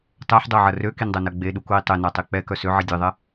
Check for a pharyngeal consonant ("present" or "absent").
present